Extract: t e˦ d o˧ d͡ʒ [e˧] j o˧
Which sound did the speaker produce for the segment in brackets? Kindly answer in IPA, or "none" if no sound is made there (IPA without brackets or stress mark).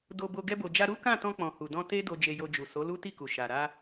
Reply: e˧